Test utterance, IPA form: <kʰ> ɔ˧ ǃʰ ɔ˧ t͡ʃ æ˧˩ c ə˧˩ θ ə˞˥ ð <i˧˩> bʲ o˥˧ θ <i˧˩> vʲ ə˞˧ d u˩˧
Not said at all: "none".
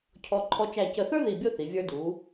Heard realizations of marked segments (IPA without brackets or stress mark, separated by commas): cʰ, i˧˩, i˩˧